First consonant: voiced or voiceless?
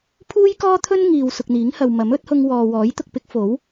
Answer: voiceless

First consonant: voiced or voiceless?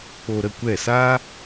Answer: voiceless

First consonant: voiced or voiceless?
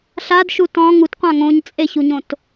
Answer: voiceless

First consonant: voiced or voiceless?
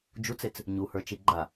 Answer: voiced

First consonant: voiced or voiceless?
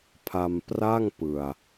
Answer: voiceless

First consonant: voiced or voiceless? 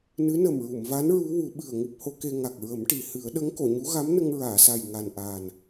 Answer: voiced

